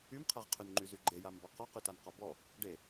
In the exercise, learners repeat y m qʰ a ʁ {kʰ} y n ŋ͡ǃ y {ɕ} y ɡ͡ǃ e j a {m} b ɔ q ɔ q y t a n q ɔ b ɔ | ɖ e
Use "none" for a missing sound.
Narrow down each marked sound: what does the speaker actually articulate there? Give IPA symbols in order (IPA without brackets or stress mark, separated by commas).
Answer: qʰ, z, m